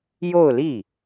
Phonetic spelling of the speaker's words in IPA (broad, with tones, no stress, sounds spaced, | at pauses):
j o˥˧ ʊ̯ l i˥˩